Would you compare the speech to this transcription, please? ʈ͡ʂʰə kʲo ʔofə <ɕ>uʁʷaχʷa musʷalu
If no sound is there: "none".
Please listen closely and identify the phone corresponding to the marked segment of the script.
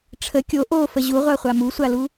ʑ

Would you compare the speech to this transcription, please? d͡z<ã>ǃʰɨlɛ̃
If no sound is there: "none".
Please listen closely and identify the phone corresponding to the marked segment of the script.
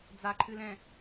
a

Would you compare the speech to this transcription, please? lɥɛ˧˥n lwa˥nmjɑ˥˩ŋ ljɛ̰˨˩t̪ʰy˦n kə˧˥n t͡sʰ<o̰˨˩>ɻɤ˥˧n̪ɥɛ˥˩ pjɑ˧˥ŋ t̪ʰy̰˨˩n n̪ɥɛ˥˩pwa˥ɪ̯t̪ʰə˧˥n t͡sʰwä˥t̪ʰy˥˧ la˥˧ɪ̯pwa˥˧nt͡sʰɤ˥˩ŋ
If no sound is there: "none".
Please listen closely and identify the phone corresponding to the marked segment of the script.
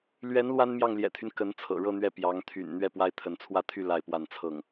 ɤ̰˨˩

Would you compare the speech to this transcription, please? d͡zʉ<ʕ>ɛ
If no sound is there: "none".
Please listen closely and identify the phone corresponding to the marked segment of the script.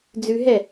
ɦ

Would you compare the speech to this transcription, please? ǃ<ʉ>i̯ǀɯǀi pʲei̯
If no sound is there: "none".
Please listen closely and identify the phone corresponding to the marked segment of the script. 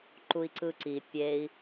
u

